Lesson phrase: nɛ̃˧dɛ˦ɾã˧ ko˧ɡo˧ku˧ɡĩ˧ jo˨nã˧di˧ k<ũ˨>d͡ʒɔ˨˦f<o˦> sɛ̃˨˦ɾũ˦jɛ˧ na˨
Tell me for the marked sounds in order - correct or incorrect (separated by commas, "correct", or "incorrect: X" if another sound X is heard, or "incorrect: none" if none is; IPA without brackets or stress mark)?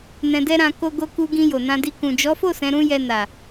correct, incorrect: o˦˨